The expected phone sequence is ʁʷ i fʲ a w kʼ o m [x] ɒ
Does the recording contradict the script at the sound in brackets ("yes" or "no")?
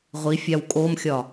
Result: yes